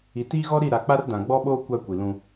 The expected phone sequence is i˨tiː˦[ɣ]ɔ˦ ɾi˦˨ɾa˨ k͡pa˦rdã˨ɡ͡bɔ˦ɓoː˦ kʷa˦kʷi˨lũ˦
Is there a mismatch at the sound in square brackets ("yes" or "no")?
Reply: no